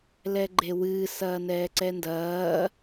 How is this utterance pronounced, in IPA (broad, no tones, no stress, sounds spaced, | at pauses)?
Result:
l ɛ ɡ͡ǃ e w ɨː s ɐː n ɛː ǀ ɛ n d ɐː